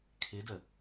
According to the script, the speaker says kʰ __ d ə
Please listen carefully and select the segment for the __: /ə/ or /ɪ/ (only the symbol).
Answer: ɪ